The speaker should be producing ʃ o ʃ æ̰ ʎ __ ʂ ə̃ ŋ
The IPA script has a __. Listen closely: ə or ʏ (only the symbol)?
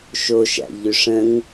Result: ʏ